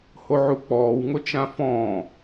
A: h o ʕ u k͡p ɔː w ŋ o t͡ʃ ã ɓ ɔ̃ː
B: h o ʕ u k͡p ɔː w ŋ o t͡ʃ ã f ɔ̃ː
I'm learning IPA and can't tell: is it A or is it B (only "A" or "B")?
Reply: B